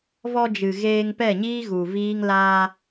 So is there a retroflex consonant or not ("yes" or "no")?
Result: no